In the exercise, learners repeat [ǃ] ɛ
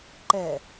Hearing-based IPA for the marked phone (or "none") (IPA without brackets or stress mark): ǃ